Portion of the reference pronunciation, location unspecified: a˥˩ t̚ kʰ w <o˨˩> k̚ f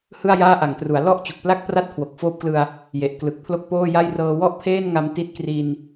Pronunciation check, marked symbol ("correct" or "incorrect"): correct